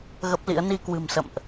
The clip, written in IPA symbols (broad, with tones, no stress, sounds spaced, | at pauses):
ɣ ə˦˥ p̚ l ḭ˧˥ ə̯ n i˧ k w ɨ̤˨˩ m s ə̰˧˨ m ʔ